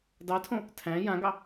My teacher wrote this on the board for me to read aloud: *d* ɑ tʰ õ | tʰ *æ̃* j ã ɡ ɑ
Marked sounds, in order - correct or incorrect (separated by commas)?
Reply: correct, correct